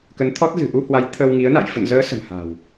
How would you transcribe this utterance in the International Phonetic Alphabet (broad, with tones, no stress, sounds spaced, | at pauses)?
k ə˨˦ n t̪ʰ ɔ˦˥ t̚ z ɨ̤˨˩ ʔ u˧ h w a˨˦ j t̪ʰ ə˧ w ŋ i˨˦ ə̯ n a̰˧˨ j f ə̰˧˨ n z əː˨˦ s ə̤˨˩ m h a̤˨˩ w